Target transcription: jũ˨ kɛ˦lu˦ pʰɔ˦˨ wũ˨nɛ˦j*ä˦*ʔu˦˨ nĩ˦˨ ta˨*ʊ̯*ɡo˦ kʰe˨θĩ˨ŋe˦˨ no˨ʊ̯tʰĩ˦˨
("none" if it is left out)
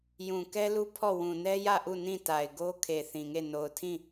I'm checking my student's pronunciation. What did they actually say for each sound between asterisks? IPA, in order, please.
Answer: ä˦˨, ɪ̯

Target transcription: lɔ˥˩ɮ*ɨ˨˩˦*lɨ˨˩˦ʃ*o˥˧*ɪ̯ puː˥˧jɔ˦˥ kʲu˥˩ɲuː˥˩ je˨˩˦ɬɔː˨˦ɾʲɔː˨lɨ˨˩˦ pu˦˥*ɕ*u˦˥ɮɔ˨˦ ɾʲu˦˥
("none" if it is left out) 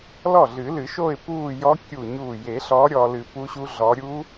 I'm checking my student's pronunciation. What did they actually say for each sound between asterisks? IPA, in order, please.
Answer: ɨ˨˩˦, o˥˧, ɕ

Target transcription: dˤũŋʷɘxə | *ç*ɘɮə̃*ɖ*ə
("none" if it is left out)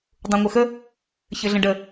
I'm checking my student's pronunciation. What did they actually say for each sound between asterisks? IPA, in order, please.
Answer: ç, ɖ

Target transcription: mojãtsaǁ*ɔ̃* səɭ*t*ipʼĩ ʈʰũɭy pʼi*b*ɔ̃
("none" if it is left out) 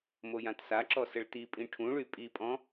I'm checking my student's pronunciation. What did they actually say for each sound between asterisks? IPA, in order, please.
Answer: ɔ, t, pʼ

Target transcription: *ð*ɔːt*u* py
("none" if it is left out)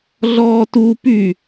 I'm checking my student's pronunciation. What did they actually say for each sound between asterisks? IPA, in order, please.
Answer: ɮ, u

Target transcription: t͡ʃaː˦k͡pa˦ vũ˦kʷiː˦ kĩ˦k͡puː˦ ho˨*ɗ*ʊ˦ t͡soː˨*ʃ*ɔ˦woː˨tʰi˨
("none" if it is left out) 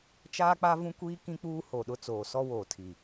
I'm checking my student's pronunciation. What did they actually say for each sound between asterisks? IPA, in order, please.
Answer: ɗ, s

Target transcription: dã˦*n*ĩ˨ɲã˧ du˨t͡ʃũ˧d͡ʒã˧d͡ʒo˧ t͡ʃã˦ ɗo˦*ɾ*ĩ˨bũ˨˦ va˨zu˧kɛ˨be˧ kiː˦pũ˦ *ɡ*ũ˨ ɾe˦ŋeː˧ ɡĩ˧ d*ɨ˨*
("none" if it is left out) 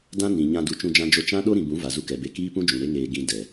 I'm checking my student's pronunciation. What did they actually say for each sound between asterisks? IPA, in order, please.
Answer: n, ɾ, d͡ʒ, ɛ˨

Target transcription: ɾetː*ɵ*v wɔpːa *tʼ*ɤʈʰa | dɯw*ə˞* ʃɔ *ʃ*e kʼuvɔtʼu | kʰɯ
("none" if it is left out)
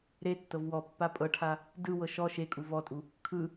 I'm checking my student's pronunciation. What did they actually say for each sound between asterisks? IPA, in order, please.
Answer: ɤ, pʼ, ɤ, ʃ

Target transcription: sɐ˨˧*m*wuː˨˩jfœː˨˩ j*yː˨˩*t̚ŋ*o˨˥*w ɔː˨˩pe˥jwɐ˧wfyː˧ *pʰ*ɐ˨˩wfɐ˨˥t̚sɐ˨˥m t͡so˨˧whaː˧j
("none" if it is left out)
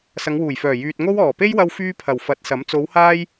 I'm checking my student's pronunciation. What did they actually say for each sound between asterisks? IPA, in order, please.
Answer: ŋ, yː˨, o˥, pʰ

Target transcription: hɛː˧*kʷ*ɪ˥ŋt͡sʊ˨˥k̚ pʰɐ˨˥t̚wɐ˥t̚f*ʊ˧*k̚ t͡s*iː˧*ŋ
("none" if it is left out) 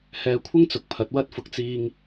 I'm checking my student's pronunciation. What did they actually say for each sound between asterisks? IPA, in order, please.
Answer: kʷʰ, ʊ˧, iː˧

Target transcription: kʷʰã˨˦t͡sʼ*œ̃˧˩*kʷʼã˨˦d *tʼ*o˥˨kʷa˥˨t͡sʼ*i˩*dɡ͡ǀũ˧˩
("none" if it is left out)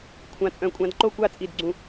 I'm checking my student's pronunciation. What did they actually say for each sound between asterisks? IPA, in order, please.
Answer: œ̃˧˩˧, ǃ, i˧˩

